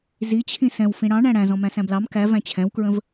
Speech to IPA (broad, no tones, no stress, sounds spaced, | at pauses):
z i t͡ɕʰ ĩ s ɛ̃ w f ĩ ɽ ɑ̃ ɳ æ̃ ɽ æ̃ z ɔ̃ m æ̃ s æ̃ b l ɑ m k æ v æ̃ t͡ɕʰ ɛ̃ w k ɹ ə̃ v